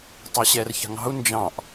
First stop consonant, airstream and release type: plain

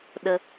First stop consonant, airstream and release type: implosive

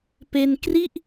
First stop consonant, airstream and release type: plain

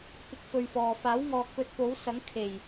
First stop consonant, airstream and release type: plain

